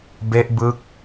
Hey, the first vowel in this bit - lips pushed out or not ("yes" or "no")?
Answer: no